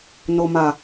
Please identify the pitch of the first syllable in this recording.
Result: low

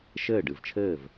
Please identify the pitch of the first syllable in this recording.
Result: falling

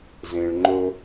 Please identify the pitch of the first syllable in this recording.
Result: low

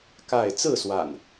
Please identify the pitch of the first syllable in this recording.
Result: falling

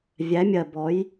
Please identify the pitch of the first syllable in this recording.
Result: rising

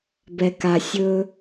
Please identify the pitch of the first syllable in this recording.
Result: low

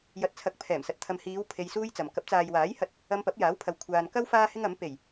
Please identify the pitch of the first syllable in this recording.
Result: low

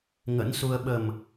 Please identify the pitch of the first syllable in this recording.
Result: rising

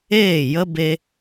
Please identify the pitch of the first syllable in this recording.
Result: falling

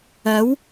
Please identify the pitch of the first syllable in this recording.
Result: rising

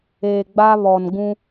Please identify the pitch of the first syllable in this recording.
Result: low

